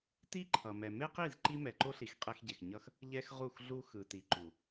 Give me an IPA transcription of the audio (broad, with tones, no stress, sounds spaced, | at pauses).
t i˦ ǃʰ ʌ˨ m ɛ˨ m e˦ q i˦˨ z ǃ i˦ m ɛ˨ ǃ o˦ ɬ i˨ x qʼ ɛ˦ x ɟ e˨ x ɲ ʌ˦ x | ʎ ɛ˦ x ʁ u˦˨ x ɮ u˦ x ɯ˨ t i˨ ǃ u˨